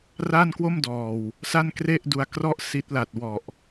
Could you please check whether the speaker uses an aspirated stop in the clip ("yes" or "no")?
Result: no